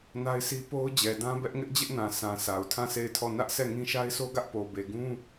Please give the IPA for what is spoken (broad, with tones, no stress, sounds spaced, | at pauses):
n a˦ ɪ̯ sʰ i˦ p o˦ ʊ̯ d͡ʑ ɛ˨ d ã˦ b ɛ˦ ʔ ŋ ɪ˦ ʔ d͡ʑ ɪ˦ ʔ n ã˨ sʰ ã˨ s a˨ ʊ̯ tʰ ã˦˨ s e˦˨ ɪ̯ tʰ ɔ˦˨ n ä˦ ʔ sʰ ɛ˦˨ ŋ ĩ˦ ʃ a˦ ɪ̯ sʰ o˦ ɡ ä˦ ʔ p o˨ b e˨ ɡ ũ˦